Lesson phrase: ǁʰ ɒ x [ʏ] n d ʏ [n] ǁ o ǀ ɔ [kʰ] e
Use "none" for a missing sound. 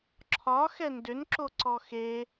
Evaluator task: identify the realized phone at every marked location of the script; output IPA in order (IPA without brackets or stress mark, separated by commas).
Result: ɛ, n, x